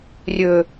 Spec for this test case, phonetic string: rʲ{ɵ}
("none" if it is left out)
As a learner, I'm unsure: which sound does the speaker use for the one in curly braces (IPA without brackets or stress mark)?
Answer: ɵ